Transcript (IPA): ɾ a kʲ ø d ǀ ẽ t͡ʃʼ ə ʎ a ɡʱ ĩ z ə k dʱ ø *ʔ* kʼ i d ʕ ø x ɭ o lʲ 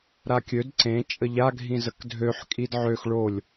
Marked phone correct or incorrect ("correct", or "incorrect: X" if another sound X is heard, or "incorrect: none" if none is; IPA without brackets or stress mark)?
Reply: incorrect: ħ